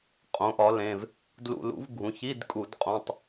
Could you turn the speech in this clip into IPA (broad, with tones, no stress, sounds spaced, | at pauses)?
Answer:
qʼ õ˩˥ ʔ ɒ˩˥ l ẽ˩˧˩ v | d l ṵ˧˩˧ l ṵ˩˥ v ɡʱ ũ˩˧˩ ç i˧˥˧ d kʼ u˧˩˧ d qʼ õ˧˥˧ tˤ